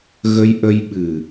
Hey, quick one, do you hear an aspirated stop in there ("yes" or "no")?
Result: no